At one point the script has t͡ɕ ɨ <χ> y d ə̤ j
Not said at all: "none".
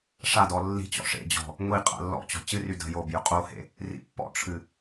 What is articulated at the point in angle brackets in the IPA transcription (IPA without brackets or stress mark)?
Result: r